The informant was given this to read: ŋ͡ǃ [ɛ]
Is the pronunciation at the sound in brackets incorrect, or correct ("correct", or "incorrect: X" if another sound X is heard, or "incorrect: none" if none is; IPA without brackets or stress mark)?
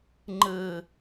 incorrect: ɘ